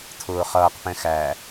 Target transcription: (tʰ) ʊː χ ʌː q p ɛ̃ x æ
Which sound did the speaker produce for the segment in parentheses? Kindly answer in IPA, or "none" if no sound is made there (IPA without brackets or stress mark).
tʰ